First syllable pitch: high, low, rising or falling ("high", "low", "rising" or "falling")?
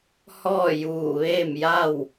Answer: falling